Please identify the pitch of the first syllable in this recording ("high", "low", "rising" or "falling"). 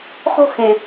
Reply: falling